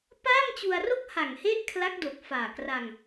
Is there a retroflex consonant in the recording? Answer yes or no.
no